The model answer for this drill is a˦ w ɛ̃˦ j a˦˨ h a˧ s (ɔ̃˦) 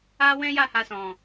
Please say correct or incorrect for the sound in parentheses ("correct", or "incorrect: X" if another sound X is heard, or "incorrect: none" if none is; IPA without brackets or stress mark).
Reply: incorrect: ɔ̃˨